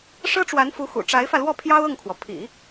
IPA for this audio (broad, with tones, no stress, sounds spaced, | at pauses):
ʂ ɤ˥ ʈ͡ʂ w a˧˥ n f u˧˥ x ṵ˨˩ ʈ͡ʂ a˧˥ ɪ̯ f ä˧ l w ɔ˥˩ pʰ j ɑ˥ ʊ̯ ɤ˥˩ ŋ kʰ w ɔ˩ pʰ ḭ˨˩˦